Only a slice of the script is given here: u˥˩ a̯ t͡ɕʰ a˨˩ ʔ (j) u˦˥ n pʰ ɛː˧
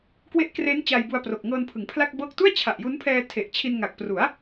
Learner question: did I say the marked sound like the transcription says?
yes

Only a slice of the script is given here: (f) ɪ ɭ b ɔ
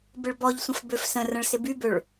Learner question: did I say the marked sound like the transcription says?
no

